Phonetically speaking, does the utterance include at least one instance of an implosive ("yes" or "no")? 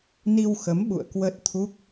yes